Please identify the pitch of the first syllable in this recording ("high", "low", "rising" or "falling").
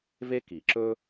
high